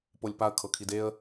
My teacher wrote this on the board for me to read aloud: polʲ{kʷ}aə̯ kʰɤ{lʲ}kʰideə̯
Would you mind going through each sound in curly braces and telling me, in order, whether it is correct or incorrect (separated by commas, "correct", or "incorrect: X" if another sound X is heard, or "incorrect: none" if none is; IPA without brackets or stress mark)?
incorrect: p, incorrect: none